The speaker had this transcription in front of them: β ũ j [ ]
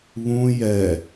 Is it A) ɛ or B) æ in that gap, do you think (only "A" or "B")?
A